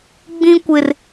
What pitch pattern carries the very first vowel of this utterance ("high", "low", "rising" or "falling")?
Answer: high